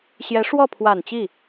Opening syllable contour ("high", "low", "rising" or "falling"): rising